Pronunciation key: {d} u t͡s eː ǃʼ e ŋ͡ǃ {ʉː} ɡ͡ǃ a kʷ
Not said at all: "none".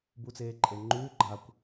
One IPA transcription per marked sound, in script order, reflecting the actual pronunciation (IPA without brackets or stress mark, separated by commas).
b, ʉː